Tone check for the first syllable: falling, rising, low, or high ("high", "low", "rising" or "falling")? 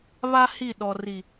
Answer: high